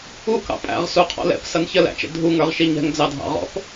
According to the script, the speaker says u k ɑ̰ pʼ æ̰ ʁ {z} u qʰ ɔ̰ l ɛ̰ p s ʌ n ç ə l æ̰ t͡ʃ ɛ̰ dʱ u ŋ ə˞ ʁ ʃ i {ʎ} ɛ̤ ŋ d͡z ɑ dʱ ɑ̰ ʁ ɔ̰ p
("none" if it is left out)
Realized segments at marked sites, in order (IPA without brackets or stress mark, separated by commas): s, ɲ